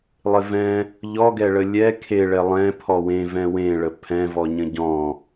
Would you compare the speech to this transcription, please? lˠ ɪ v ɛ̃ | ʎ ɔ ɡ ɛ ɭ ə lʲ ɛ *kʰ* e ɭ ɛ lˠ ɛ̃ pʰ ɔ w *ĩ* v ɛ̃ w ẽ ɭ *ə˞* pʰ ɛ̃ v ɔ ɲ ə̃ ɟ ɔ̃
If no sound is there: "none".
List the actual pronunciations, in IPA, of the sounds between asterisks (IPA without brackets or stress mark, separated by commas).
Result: kʰ, ẽ, ə